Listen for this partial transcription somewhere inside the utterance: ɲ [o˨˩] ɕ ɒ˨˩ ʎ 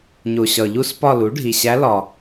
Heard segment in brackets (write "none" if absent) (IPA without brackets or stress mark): o˨˩